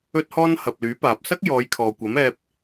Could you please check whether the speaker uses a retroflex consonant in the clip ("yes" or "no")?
no